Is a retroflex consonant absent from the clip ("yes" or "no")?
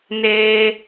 yes